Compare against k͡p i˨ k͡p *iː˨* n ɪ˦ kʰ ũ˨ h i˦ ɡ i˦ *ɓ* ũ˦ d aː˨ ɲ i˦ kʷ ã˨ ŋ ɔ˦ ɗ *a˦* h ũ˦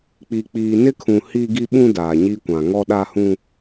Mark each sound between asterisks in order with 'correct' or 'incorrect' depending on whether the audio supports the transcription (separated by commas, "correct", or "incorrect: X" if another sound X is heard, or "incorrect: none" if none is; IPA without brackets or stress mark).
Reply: correct, correct, correct